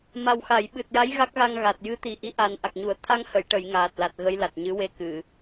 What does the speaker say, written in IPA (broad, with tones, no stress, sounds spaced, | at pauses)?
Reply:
m a˨˩ w x a˨˩˨ j ɓ ɨ˨˩ t̚ j a˧˥ j ɣ a˦˥ k̚ ɣ a˧ ŋ ɣ a˨˩ t̚ j ɨ˧˥ t̪ i˨˩ ʔ i˧˥ ʔ a˨˩ n ʔ a˨˩ k̚ ɲ u˨˩˦ ə̯ t̪ʰ a˧ ŋ h ə˨˩˨ j ʈ ə˨˩˨ j ŋ aː˨˩ t̚ l a˨˩ t̚ ɣ ə˧˥ j l a˨˩ t̚ ɲ ɨ˧˥ w e˧ k ɨ˨˩˨